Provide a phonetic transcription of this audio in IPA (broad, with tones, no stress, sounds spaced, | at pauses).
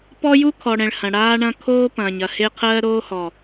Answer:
p ɔ˦ j u˦ kʰ ɔ˨ ɽ ɛ̃˨ ɭ h ɐ̃˨ ɽ aː˦ ɳ ɐ̃˦ kʰ oː˦ p ɐ̃ː˨ ɲ ɐ˨ h e˦ qʰ ɜː˦ ɾ oː˦ h ɔ˨